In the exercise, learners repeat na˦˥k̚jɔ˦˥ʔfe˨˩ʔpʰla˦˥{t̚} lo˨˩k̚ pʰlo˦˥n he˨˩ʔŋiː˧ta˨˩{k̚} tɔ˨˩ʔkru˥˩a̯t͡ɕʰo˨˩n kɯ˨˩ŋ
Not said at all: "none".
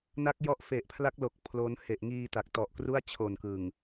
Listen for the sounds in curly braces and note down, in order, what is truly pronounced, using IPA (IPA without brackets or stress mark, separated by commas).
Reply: k̚, k̚